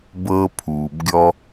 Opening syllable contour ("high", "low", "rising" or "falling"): high